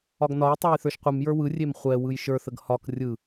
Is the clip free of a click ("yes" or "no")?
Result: yes